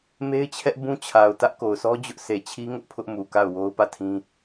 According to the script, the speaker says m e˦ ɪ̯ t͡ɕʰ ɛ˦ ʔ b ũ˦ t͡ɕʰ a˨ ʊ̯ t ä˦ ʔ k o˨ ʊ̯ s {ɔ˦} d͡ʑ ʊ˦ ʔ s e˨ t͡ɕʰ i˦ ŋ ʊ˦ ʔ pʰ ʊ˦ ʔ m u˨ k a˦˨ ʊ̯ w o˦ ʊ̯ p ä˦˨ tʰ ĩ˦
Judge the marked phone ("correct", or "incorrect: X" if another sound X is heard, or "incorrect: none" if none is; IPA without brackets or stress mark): correct